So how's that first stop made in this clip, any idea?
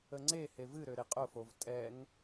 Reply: click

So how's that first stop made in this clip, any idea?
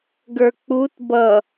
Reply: plain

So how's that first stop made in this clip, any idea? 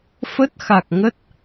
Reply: plain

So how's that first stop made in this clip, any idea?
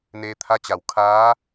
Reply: aspirated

